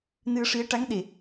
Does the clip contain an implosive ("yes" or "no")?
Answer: yes